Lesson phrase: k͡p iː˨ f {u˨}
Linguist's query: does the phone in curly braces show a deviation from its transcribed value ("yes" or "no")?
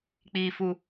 no